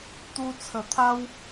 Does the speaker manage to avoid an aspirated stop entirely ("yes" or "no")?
no